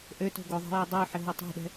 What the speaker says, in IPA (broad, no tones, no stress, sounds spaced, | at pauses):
ʔ ø t o̤ ɡ o ðˤ e̤ j e dˤ ø ħ ɪ ɦ o tˤ ɛ̤ ɗ ɛ̤